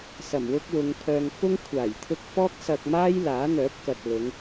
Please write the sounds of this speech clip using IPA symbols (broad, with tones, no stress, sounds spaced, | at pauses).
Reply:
s ɐ˨˩ m w ʊ˥ k̚ w ʊ˨˧ ŋ pʰ œː˧ ŋ f ʊ˥ ŋ kʷʰ aː˨˩ j t̪ʰ ʊ˥ k̚ f ɔː˥ k̚ s ɐ˧ k̚ m aː˥ j l aː˨˥ n̪ œː˨˥ p̚ k ɐ˨ t̚ l ʊ˨˧ ŋ